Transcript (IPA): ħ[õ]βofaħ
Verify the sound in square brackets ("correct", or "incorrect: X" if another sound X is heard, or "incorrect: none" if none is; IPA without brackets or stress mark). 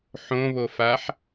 correct